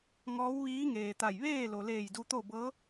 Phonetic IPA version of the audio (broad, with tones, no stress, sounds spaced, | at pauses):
ŋ ɔː˧˥ w ʋ iː˧˥ ŋ eː˩ t̪ a˧˩ j ʋ eː˥˨ l o˩ l eː˧˩ j d u˧ t̪ o˥˨ b ɤː˧˥